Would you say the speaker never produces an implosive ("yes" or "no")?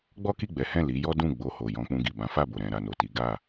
yes